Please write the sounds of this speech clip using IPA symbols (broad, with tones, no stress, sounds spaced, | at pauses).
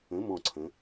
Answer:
ə̃˩˥ m ɔ̃˧˩ ǀʰ ə̃˩˧